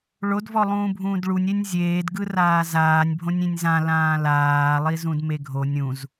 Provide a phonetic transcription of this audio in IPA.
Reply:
ɭodvɔlˠũː bʱũːdɭunʲenʲ zʲeːdɡɯraː zaːnʲbʱõnʲ ĩnʲzã lãːlaːlˠi zũdmeɡʱo nʲũz

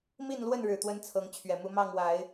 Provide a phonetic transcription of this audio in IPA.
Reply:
mi˥˨nlwə˥˨nɻɻ̩˨˩t̪wə˨˦n t͡sʰɤ˨˦ŋt͡ɕʰɥɛ˨˩mu˨˦ mɑ˥˨ŋwa˨˦ɪ̯

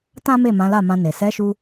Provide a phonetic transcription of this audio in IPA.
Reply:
tã˦me˦˨ mã˨˦la˦˨mã˧ne˨ sɛ˨˦ʃu˧

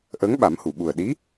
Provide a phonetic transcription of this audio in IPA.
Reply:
ʔəː˧˥ŋɓa˨˩˦mhu˨˩˨ ɓu˨˩ə̯ɗi˧˥

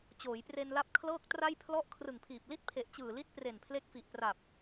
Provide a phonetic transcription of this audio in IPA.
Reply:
t͡ɕoː˩˦jpre˧nla˦˥p̚ kʰlɤː˥˩k̚tra˥˩jpʰlɔ˥˩ʔ kʰrɯ˨˩ŋpʰiː˨˩p̚ li˥˩t̚pʰe˨˩ʔ t͡ɕɯː˨˩li˦˥t̚ pre˨˩npʰle˦˥k̚fi˨˩ʔpra˨˩p̚

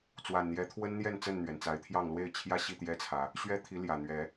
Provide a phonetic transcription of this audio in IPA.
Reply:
t͡swa˨˩nn̪jɛ˨˦t̪ʰwə˦nn̪jɛ˥˨n t͡sə˥˨nn̪ɥɛ˩nt͡sa˨˦ɪ̯t̪ʰjɑ˥˨ŋ lwe˥˨ɪ̯t͡ɕʰjä˥˨ɕi˥˨ t̪jɛ˦t͡sʰä˨˦ | ɕɥɛ˦t̪ʰi˨˦ljä˨˩n̪ɥɛ˨˦

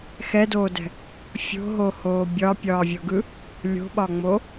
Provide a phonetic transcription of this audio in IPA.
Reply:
xɛdoːdɛ̤ | fʲo̤ɦohoː bʲɒpʲɒːvʲoɡɯ | lʲo̤ɓɒŋ͡mo

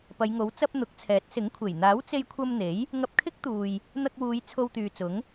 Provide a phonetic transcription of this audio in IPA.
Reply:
pɐ˨˧jŋo˨˥w t͡sɐ˧p̚ n̪ʊ˨˥k̚t͡sʰɛː˨˥t̚sɪ˨˥ŋkʷʰe˨˩j n̪aː˨˥wt͡se˧jkʷʰɐ˧mn̪e˨˥j | ŋɐ˧p̚kʰɪ˥k̚t̪uː˨j | n̪ɐ˧k̚wuː˨˧j t͡sʰo˧wt̪yː˨t͡sʊ˨˥ŋ

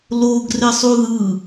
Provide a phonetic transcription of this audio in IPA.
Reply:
loɡre sˤuðɯ

